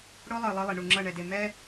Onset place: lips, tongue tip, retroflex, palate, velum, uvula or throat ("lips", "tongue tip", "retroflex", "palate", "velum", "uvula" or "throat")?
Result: retroflex